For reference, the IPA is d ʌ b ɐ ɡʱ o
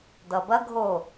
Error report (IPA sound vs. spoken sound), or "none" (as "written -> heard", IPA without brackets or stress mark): none